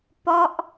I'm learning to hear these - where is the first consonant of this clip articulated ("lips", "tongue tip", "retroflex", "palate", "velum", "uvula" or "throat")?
lips